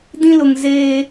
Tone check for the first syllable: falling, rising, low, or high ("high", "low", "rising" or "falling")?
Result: high